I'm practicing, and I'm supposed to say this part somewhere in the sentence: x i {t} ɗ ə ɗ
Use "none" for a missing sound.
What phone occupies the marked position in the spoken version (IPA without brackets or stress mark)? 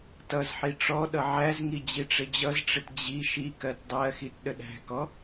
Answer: t